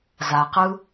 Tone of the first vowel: low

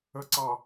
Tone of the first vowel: low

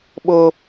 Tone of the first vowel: high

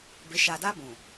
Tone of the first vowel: rising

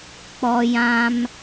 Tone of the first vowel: high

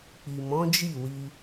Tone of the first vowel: low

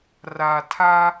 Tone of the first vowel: low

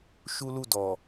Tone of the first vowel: high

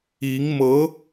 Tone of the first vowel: rising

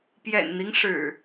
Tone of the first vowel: low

